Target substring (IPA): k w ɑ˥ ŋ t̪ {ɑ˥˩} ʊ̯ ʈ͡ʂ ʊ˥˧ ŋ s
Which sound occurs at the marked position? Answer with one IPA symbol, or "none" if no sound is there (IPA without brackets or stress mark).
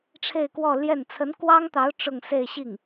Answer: ɑ˧˥